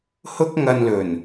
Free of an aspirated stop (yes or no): yes